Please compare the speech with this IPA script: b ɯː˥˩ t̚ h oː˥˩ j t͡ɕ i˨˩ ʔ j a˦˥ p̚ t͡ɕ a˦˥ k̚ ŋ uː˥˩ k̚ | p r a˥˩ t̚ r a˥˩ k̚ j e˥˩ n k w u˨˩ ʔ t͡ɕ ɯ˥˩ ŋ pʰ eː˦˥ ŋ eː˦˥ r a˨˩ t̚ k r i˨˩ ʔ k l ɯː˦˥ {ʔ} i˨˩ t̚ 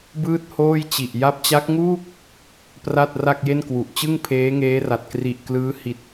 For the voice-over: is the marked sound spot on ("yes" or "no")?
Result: no